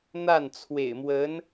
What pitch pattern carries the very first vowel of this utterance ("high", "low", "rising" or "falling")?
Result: falling